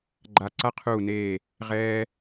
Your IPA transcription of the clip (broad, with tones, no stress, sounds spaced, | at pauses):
ɡ͡ǃ a˧˩ ǀ a˦ qʰ uː˧˩ n eː˧˩ | ʁ ɛː˦